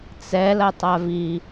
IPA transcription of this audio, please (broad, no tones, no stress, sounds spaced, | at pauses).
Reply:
t͡s ɛ l ɐ tˤ a v i